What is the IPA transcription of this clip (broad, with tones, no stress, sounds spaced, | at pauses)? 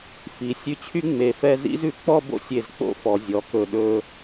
f i˩˧ sʲ ʉ˧ t͡ɕʰ y˥ ŋ͡m e˧˩ f ɛ˥˧ z ḭ˥ z ʉ˩˧ k͡p ɔ˥˧ b o̰˥ sʲ e˧˩ z k͡p o̰˥˧ f ɔ˩˧ zʲ ɔ˩˧ k ɵ˧˩ ɗ ɵ˧